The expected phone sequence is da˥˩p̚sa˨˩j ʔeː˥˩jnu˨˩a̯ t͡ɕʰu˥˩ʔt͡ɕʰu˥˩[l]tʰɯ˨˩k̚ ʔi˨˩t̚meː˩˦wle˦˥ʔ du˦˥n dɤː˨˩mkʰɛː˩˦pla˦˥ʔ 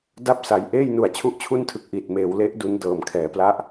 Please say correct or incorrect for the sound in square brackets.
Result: incorrect: n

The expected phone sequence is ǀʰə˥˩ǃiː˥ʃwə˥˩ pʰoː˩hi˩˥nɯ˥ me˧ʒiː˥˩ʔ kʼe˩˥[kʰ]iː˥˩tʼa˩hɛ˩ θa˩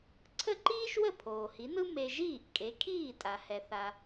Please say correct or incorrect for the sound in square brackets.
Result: correct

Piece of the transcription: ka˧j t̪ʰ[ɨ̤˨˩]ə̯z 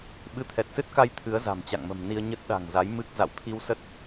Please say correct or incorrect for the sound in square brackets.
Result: incorrect: ɨ˨˦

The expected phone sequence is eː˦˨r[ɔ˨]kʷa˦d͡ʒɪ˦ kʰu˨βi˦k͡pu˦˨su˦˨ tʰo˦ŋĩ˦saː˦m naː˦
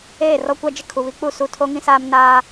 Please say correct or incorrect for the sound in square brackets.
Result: incorrect: ɔ˦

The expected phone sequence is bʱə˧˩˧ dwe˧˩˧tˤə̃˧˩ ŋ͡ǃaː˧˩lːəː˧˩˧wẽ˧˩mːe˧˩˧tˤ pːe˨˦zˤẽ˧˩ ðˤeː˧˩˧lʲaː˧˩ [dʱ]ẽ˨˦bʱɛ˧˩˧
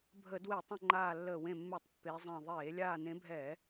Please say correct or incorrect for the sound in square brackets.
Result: incorrect: n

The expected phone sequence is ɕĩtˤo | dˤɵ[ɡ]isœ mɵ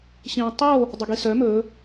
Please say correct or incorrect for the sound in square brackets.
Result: correct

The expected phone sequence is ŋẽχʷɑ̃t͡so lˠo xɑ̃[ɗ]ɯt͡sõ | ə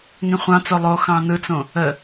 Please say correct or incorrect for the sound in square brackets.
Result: incorrect: n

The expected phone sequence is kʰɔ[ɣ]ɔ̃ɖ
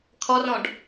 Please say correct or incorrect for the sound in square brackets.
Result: incorrect: r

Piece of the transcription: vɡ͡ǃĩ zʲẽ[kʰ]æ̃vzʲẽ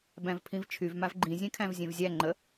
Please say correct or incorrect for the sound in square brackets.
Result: correct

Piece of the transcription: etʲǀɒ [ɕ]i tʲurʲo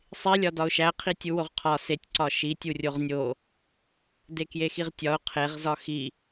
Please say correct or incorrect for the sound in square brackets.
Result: incorrect: ʃ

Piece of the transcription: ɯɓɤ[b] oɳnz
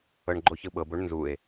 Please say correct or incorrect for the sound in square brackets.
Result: correct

